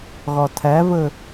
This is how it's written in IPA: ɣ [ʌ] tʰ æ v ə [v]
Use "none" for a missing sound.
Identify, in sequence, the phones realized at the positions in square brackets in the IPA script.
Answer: ɒ, none

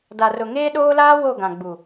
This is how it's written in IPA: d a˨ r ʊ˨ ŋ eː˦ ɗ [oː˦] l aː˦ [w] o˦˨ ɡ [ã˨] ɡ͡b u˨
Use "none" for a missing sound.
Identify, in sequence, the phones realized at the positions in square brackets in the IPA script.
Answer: oː˦, w, ã˨

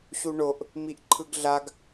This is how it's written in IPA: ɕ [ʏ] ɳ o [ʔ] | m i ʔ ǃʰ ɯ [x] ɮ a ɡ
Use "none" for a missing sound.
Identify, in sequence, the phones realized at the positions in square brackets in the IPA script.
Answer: u, ʔ, ɡ

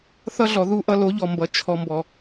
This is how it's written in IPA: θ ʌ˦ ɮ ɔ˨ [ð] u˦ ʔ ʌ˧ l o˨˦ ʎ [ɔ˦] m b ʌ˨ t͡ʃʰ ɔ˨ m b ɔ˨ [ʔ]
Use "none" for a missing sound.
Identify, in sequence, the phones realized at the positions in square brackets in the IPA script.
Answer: ð, ɔ˨, none

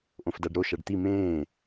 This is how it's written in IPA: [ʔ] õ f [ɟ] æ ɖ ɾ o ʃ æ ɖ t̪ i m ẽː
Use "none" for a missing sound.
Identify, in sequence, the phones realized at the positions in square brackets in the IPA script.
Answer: ʔ, d

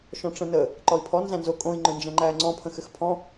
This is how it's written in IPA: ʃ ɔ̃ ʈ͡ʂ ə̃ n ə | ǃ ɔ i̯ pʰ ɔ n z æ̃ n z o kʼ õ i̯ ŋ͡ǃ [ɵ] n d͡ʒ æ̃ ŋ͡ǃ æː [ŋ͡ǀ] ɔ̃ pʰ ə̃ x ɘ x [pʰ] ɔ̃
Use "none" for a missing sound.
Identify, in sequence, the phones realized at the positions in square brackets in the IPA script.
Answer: ɵ, ŋ͡ǀ, pʰ

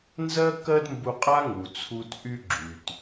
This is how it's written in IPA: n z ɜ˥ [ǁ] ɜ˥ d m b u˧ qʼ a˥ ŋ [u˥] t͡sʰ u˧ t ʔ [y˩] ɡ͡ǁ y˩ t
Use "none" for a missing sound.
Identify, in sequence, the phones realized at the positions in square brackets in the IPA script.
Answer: k, u˩, y˥

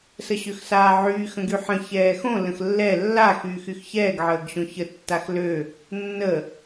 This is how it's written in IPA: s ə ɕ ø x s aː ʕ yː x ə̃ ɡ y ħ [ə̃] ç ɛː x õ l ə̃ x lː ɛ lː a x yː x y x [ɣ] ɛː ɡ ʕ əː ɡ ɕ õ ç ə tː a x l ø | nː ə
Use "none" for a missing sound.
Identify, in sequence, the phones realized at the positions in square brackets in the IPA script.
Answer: ə̃, ç

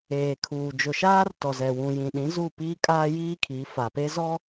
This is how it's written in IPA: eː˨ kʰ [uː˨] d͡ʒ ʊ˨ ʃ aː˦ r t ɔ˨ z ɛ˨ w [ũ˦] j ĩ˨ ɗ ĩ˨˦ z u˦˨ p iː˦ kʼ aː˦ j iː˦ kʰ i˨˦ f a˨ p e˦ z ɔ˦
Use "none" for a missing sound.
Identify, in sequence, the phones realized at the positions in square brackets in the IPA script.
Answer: uː˨, ũ˨

